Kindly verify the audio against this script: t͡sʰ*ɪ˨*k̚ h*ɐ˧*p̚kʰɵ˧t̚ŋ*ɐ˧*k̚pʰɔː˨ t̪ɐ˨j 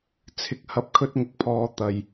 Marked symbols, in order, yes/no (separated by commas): yes, no, yes